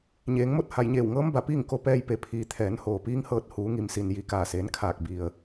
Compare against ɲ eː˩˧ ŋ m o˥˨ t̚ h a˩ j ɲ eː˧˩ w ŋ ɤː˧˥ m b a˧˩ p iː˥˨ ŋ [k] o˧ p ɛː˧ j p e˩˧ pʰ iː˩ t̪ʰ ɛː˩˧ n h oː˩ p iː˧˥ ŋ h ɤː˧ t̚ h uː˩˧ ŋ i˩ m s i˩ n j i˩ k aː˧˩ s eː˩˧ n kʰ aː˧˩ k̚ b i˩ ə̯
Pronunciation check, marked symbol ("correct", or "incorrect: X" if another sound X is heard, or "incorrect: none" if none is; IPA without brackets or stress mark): correct